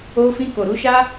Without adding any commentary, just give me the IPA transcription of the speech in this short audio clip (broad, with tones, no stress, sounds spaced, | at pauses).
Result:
o˧ f ĩ˧ k o˨ ɾ u˨˦ ʃ a˦